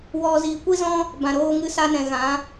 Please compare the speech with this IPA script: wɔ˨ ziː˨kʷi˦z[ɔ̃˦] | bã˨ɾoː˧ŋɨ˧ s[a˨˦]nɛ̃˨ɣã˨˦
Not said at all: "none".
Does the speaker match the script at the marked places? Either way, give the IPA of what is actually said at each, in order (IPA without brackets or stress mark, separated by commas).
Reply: ɔ̃˦, a˧